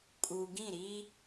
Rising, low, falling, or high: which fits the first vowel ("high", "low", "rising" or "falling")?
low